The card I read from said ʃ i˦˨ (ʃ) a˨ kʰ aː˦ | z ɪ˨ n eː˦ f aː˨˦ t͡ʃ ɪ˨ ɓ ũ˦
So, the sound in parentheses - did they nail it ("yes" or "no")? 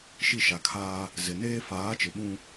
yes